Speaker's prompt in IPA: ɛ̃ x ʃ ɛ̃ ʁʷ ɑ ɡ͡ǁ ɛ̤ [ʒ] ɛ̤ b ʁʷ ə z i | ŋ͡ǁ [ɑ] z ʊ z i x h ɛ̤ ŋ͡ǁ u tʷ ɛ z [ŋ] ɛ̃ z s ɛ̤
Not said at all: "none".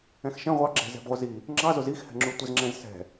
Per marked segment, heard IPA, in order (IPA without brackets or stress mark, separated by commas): z, ɑ, ŋ͡ǁ